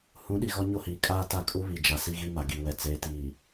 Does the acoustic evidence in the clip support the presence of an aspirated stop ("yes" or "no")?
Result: no